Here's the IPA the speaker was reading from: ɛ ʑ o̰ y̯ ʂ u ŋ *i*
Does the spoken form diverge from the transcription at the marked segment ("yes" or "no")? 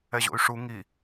no